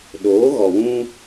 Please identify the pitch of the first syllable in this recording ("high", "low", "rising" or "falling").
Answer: rising